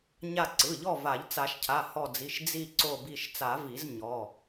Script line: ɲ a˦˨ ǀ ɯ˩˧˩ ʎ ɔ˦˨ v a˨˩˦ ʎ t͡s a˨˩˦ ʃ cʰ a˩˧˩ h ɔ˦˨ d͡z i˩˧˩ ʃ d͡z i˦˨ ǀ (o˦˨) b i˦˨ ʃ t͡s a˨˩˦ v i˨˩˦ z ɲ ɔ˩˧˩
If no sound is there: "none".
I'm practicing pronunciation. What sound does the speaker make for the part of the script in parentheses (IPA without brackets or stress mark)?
o˦˨